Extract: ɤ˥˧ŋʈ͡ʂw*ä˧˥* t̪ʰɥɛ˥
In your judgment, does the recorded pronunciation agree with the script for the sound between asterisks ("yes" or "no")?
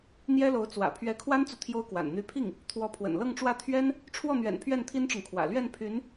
no